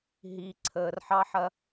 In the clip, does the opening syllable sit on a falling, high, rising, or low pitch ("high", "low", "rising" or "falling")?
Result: low